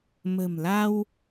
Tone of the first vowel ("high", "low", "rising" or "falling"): low